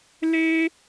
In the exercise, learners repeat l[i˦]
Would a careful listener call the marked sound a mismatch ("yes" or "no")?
yes